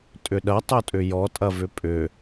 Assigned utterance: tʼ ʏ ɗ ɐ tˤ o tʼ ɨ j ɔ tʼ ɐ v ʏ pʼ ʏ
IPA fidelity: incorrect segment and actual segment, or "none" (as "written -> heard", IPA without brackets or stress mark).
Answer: ɨ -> ʏ